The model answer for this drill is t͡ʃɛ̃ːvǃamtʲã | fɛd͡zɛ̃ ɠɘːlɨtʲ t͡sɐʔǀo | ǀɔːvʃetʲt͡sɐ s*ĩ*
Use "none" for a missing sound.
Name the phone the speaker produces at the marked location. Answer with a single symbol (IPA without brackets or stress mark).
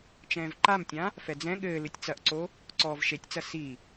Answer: i